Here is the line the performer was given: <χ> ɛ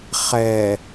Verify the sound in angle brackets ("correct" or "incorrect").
correct